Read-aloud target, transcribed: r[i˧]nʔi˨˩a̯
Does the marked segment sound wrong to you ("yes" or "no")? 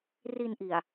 no